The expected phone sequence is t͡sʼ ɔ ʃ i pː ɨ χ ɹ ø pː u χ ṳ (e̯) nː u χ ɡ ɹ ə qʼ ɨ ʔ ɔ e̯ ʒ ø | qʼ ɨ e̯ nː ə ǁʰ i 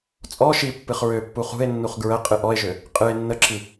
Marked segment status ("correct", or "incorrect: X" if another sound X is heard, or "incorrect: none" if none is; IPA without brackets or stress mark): correct